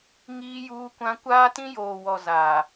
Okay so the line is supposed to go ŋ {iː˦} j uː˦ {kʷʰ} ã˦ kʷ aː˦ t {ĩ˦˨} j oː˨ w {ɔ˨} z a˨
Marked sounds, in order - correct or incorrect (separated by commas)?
correct, incorrect, incorrect, correct